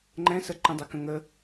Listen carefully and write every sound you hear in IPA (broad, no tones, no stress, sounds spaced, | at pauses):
ŋ͡ǃ ɛ̃ s ə ǃ ĩ dˤ ɪ k ə̃ ŋ ə